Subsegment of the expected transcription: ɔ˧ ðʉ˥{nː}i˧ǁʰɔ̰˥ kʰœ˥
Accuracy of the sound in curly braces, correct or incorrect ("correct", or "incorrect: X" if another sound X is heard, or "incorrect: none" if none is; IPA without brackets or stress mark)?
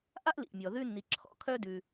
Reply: correct